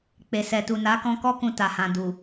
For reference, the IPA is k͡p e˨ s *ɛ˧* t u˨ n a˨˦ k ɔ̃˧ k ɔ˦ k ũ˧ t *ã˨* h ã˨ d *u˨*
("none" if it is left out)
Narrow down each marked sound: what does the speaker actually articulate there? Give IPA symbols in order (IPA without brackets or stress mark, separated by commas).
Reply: ɛ˨, a˨, u˨